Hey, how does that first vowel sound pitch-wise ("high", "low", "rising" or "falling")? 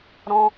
high